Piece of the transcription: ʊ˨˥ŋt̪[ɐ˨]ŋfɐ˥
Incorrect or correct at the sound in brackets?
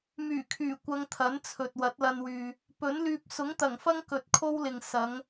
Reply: incorrect: ɐ˨˩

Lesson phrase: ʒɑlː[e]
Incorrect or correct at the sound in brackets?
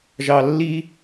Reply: incorrect: i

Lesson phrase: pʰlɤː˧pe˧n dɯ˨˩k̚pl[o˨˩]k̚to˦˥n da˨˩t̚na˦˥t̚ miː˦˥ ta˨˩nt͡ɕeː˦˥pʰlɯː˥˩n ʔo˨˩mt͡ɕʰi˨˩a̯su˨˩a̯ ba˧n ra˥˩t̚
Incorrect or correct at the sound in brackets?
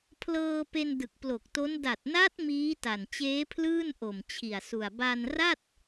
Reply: correct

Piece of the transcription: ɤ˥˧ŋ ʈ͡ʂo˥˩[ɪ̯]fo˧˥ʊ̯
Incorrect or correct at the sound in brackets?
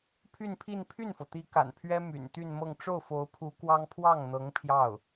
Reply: incorrect: ʊ̯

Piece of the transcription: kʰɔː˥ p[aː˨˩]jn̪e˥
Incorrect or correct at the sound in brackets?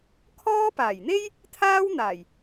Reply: correct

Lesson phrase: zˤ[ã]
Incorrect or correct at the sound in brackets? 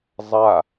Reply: incorrect: a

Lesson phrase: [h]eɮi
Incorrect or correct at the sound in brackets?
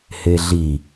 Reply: correct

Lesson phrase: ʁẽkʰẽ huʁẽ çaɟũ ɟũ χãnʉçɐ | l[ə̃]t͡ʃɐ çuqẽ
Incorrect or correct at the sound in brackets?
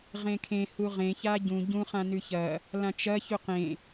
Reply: incorrect: ã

